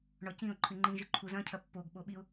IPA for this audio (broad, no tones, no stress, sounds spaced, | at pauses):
ɳ ɔ c ĩ ʊ̯ ǃʰ ɨ ŋ͡ǃ ĩ ʒ ɨ ǃʰ u z ɐ̃ cʰ ɐ pː o ɡ ɓ o ɓ i ʊ̯